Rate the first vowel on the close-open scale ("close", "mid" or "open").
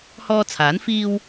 mid